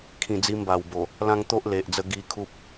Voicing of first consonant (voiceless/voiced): voiceless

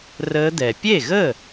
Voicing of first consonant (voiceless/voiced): voiced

